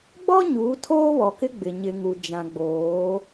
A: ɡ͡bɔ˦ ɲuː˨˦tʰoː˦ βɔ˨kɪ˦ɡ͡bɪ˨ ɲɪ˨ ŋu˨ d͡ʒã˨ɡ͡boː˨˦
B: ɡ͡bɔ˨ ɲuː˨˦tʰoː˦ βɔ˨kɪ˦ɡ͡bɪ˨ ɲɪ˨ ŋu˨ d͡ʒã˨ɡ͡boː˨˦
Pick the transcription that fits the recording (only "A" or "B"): A